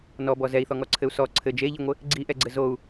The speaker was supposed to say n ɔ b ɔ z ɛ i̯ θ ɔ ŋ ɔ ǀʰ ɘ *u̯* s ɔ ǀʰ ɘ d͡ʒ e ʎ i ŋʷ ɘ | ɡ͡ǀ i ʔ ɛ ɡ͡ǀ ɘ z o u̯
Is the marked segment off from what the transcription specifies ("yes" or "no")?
no